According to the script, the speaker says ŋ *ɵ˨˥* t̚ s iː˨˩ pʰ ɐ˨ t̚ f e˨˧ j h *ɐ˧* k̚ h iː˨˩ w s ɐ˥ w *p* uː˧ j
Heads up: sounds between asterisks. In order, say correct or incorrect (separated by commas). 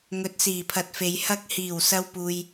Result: correct, correct, correct